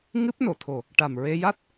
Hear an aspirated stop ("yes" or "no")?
yes